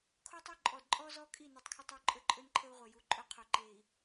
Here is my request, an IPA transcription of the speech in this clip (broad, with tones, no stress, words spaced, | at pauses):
kʰo˦tˤɵ˦ ǃʼɔ˨dǃʼɔ˦zɔ˦kʼi˦˨ nu˨tˤkʰɪ˦tˤɪ˦u̯ ǃʼə˦ǃʼɵ˦nǃʰə˦u̯ ʁʷe˨ ju˨ǃʼɵ˦ qʰo˨ǃe˨i̯